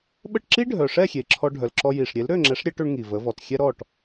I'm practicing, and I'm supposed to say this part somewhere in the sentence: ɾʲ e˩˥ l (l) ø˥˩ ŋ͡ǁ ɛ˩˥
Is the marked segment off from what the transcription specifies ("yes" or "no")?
yes